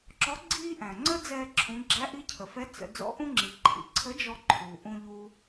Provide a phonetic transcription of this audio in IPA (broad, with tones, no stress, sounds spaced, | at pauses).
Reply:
ǁ ɔ˧˥ ɡ͡ǀ iː˥ ʔ æ̃˩ ŋ͡ǀ ə˥ d͡z ɛː˧ ǁʰ ũ˩˧ ɡ͡ǁ æ˧˥ ʔ i˧˥ cʰ ə˩ f ɛ˧˥ t͡s ə̰˩˧ d͡z ɔ̰˧˥ ʔ ũ˥ ŋ͡ǁ i˩ ǃʰ ḭ˩˧ ǀʰ ə˧˥ d͡ʒ ɔ˧ ǃʰ uː˩ ʔ ũ˧ ʎ uː˧